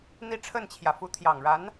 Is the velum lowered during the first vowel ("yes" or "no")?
no